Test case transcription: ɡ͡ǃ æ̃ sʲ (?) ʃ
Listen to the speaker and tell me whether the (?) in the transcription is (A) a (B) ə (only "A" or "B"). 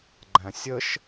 B